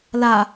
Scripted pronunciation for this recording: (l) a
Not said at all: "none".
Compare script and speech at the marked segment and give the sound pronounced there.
l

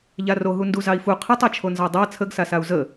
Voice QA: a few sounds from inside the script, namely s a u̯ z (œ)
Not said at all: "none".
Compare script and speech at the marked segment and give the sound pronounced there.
ə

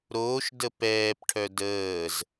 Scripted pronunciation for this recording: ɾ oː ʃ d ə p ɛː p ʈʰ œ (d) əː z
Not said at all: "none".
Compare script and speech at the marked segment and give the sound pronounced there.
d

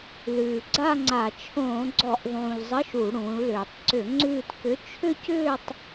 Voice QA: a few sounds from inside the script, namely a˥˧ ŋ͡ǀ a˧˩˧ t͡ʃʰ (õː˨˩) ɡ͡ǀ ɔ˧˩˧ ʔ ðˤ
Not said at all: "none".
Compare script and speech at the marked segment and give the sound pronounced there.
õː˧˩˧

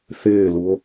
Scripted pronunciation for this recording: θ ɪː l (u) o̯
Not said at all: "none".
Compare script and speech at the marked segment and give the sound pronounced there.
u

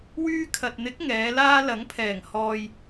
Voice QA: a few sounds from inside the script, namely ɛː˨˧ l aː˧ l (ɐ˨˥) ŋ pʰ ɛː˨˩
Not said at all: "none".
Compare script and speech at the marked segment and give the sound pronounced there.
ɐ˨˥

